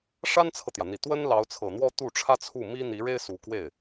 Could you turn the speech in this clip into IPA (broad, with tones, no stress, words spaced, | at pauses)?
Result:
ʂa˥nt͡sʰɤ˨t̪jä˩n̪i˨˩ t̪wə˥n lɑ˧˥ʊ̯t͡sʰɤ˨˩n̪wɔ˥ t̪u˥˩ʈ͡ʂʰä˥ t͡sʰu˥˩ mi˥n̪i˧˥ɻe˥ɪ̯ su˧˥kwe˥˩ɪ̯